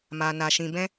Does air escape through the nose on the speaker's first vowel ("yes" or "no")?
no